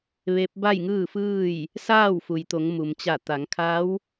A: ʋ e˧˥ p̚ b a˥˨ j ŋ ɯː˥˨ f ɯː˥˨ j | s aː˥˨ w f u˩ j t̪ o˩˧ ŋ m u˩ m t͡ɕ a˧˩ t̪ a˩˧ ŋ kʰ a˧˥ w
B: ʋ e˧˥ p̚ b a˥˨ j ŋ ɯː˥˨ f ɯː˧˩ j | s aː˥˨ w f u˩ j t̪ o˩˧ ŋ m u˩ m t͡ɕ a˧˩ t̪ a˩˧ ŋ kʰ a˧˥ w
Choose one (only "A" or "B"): A